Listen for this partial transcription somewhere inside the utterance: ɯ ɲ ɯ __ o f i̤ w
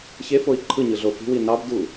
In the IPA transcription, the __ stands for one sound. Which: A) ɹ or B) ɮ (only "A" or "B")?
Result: B